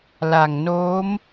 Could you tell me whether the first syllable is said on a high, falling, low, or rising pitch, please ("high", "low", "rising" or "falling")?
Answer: low